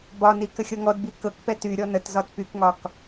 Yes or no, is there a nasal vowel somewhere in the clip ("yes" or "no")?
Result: no